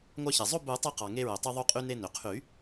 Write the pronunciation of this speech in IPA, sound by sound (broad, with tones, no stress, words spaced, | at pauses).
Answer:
ŋʷɑ˧çe˩zˤo˥˧ bu˨˩˦tˤo˧qɑ˩ ŋe˧ɹø˩tˤu˧ ðˤu˧qʼy˧ne˧ nø˩qʰy˨˩˦